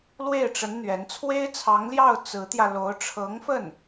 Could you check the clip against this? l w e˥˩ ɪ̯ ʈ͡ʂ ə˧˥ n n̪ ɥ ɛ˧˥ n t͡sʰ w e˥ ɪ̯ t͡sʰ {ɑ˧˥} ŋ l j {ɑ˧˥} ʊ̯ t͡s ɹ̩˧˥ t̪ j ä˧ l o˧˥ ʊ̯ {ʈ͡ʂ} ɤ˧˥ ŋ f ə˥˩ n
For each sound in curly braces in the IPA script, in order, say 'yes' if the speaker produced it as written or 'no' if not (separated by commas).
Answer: yes, no, no